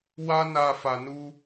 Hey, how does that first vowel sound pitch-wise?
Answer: high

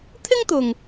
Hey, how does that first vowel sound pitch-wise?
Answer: high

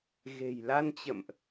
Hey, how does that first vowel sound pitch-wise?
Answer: low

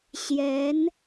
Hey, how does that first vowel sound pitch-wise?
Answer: rising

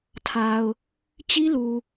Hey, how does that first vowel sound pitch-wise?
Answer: low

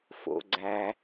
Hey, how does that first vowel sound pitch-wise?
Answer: low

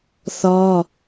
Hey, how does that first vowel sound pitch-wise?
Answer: high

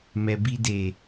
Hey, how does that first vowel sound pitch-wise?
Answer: low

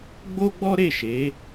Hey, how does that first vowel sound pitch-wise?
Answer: high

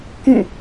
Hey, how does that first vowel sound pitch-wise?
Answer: falling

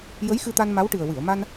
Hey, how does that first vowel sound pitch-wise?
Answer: rising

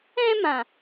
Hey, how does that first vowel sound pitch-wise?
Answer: high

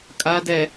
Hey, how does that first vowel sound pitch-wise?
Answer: rising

